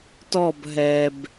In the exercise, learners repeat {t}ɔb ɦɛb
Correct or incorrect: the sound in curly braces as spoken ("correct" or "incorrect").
correct